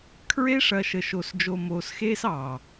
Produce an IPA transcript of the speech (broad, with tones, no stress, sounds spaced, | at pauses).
kʰ ɹ e˦ ʂ ɐ˨ ʃ ə˨ ʃ o˨ s d͡ʒ o˨ m oː˨ s x eː˦ s ɑ˨